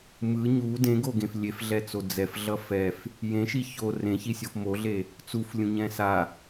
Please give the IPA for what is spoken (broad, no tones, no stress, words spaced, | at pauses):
mɯ ɲu dẽɡoɡẽf lʲefɮɛt͡so d͡zɛfɮʌ fɛf | jẽʃi ço rẽçisʲof moɮe | t͡suflʲũɲɛ̃ sa